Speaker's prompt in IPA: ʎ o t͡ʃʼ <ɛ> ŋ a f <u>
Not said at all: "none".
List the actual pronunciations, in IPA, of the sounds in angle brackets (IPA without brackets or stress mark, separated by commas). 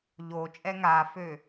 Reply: ɛ, ø